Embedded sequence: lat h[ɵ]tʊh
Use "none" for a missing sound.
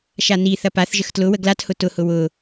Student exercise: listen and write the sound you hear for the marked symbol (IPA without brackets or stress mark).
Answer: ʊ